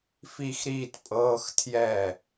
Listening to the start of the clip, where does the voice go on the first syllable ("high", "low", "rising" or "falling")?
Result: falling